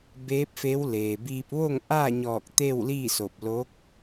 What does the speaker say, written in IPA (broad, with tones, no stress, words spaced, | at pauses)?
beː˧˥p̚fe˧˥w leː˩biː˧p̚ ʋo˥˨ŋʔaː˥˨ɲɔː˧˩k̚ t̪e˥˨w liː˥˨so˧˩p̚lo˧˥k̚